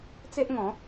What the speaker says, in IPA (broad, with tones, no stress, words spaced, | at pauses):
t͡se˦ʔŋɔ̃˨˦